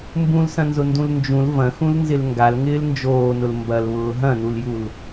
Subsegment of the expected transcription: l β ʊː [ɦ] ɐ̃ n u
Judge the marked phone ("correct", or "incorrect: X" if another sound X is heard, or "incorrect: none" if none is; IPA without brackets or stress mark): correct